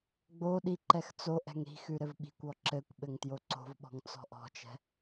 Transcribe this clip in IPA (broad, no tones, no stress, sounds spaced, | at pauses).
ɡ͡b o ɗ i ǃ ɛ x t͡s o ʔ ɛ̤ ŋ ɾ i̤ x ʉ ɾ ɘ v ɓ i̤ kʷ ɔ ǁ ɘ kʷ ɓ ɘ ŋ t j o ǀ o̤ v ɓ ɔ̤ ŋ t͡s ɔ̤ ʔ ɔ̤ t͡ʃ ɛ̤